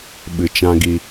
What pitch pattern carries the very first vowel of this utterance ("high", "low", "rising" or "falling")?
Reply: low